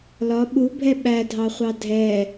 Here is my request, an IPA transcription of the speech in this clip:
lɒ ɓubʱɛ ɓædʱɑχʷɑ dʱɛ

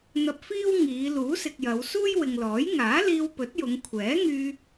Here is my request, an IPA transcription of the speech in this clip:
n̪ɐ˧p̚fiː˥w ŋiː˨˧ luː˨˥sɪ˨k̚jɐ˨˧wsuː˥j wɪ˨ŋlɔː˨˥j ŋaː˨˥liː˧wpɵ˨˥t̚ jʊ˨˧ŋkʷʰɛː˨˥ŋyː˧

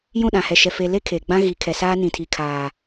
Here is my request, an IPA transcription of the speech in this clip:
jũ˦˨ɗã˨hɛ˨ʃɛ˨ fe˨le˦ kʰe˨ɡ͡bã˦ ɣi˨˦kʰɛ˨saː˦ nĩ˨tʰi˨kʰaː˨

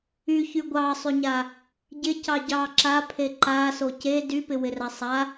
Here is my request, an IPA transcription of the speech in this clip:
yçy ɡʷɑsˤyɲa | ɟɪcɑ ɟɑ ǁapʰe ǃaso ce dypɪwɪra sˤa

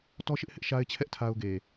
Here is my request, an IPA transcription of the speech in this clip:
tɔ˦ʃɪ˦ʔhɪ˦ʔ ʃa˦ɪ̯t͡ɕʰɛ˦ʔ tʰa˦ʊ̯ɡe˨

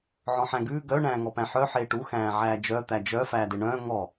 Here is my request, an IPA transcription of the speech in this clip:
ʕɔ̃ħæ̃ɡʉː ɡœ ɳæ̃ːŋɔpæ̃ħœ ħeːʈu xæ̃ːʕæːd͡ʒœ t̪æd͡ʒœ fæːdeɳœ̃ː ŋɔ

